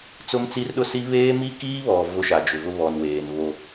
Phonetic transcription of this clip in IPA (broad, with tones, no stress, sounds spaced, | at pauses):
t͡s ʊ˦ m t͡s i˦ r ɗ ʊ˦ s i˦ β eː˦ m i˦ k iː˦ β ɔ˨ v ʊ˦ ʃ a˨ d͡ʒ ʊ˨ v ʊ˦ β ɔ˨ n w eː˨ n β o˦